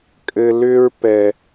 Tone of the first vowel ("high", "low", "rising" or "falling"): low